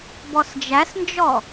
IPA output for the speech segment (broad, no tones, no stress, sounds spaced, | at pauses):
b ɔ s d͡ʒ æ s n d͡ʒ ɔ